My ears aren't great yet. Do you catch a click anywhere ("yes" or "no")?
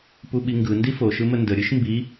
no